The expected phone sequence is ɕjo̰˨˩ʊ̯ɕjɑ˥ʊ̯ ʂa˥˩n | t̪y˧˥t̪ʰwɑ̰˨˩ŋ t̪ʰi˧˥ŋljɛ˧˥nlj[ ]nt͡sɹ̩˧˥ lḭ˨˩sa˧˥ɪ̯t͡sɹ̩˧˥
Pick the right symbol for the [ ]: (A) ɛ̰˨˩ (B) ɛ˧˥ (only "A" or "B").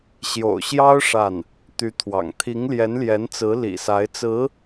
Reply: B